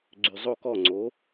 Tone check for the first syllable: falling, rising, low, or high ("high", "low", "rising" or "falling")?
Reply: low